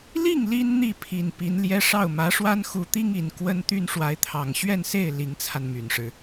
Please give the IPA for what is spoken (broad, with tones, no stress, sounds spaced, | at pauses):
l i˥˩ ŋ l i˥ n n̪ i˥˩ pʰ i˨˩ n p i˧˥ n l j ɛ˥ ʂ ɑ˥˩ ʊ̯ m ä˧˥ ʂ w a˥ n x u˧˥ t̪ i˥ ŋ i˨˩ n k w ə˥ n t̪ y˥ n ʂ w a˧˥ ɪ̯ t̪ʰ ɑ˨˩ ŋ ɕ ɥ ɛ˥˧ n s e˥˩ ɪ̯ l i˧˥ ŋ t͡sʰ a˧ n m y˨˩ n ʂ ɻ̩˦